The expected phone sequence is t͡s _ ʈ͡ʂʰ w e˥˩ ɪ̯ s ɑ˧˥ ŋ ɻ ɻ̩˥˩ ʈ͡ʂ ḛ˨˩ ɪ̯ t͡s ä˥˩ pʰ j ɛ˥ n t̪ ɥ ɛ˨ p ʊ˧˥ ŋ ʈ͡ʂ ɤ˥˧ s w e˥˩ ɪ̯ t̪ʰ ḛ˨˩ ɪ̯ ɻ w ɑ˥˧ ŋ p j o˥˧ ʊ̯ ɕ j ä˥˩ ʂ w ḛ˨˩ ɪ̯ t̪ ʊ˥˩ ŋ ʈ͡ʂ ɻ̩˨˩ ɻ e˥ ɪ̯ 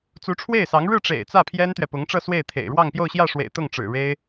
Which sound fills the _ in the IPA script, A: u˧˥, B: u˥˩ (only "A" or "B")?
A